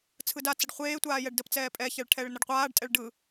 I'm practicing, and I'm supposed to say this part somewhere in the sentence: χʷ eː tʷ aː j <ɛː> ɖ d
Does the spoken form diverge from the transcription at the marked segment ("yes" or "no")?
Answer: yes